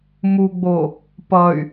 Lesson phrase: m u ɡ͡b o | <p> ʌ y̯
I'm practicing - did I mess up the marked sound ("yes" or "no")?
no